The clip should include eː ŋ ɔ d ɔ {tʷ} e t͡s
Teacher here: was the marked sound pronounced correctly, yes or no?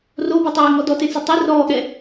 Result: no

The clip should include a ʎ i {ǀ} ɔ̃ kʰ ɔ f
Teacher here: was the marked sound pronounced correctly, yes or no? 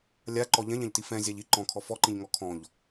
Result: no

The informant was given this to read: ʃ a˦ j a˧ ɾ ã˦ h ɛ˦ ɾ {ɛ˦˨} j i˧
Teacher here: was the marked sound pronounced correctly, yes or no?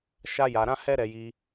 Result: no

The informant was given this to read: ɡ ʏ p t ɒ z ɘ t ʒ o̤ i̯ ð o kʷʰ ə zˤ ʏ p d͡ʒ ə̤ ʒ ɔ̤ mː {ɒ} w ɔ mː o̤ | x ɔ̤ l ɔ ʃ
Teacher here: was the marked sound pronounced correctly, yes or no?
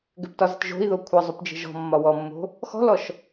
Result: yes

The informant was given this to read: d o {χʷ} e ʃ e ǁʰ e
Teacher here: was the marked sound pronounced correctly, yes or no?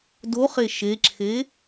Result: no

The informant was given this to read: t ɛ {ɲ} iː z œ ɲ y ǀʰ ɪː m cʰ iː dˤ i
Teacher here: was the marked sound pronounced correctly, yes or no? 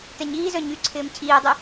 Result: yes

